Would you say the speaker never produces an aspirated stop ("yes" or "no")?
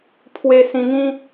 no